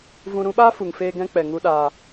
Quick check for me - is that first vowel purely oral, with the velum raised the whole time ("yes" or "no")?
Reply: no